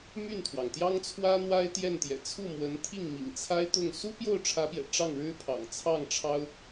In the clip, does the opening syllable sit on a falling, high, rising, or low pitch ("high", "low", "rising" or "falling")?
falling